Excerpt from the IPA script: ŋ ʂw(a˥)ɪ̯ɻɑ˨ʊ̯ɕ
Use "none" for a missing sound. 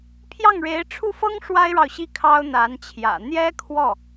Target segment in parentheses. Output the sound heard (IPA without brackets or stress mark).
a˥